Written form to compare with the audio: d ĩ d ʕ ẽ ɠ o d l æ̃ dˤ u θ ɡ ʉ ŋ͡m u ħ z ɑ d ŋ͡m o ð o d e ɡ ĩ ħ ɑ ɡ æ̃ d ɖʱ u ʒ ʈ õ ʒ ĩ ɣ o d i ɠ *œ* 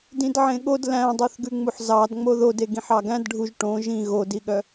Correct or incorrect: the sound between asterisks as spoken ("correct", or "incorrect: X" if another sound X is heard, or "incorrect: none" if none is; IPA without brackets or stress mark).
correct